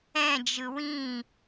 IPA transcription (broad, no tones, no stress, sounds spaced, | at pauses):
ɛ̃ d͡ʒ ɯ w ĩ